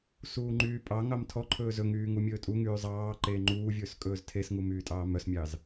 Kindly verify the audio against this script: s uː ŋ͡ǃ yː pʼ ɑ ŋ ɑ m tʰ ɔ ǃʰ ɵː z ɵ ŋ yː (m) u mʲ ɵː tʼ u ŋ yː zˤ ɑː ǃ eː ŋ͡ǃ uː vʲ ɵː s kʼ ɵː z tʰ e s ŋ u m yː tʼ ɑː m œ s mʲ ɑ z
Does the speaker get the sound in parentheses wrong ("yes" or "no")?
yes